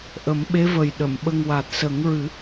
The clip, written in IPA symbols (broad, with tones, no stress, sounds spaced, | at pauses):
ʔ ə˨˩˦ m ɓ e˧˥ v ə˨˩ j ɗ ə˨˩˨ m ɓ ə˧ ŋ w a˨˩ t̚ s ə˨˩˦ ŋ ɹ ɨ˨˩˦